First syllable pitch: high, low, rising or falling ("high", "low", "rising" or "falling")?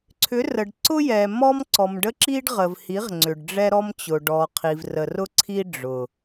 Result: rising